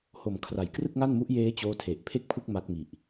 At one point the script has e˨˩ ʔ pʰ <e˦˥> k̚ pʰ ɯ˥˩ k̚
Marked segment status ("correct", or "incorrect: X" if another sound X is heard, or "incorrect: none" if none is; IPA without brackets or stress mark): incorrect: e˥˩